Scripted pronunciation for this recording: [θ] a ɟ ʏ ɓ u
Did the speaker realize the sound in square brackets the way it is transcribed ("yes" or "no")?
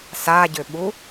no